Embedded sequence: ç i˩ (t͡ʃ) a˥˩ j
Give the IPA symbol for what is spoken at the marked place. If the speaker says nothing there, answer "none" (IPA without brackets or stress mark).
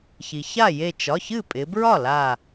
ç